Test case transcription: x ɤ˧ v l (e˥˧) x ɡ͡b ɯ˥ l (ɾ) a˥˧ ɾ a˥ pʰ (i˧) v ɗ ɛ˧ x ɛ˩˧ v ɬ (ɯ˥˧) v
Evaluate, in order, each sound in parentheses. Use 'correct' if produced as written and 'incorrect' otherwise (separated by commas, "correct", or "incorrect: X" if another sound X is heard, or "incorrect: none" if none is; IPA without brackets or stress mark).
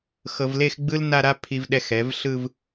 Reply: correct, incorrect: n, correct, correct